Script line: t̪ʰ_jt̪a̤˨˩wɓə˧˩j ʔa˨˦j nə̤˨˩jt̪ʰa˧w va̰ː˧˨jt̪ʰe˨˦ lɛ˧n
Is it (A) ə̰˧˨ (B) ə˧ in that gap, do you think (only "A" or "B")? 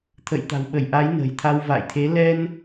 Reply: A